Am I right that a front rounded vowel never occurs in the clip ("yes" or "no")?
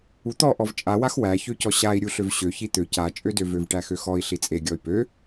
no